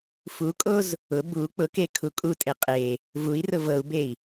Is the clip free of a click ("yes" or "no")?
yes